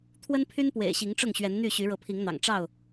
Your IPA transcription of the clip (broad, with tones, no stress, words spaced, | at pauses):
t̪ʰwə˦npʰy˦npwḛ˨˩ɪ̯ ɕi˨˦ŋʈ͡ʂʊ˥˨ŋɕɥɛ˨˦nn̪y˥˨ ɕy˨˦ɻɤ˨˦pʰi˨˦ŋn̪ɑ̰˨˩ŋ ʈ͡ʂɑ˥˨ʊ̯